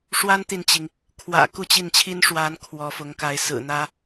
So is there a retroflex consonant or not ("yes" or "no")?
yes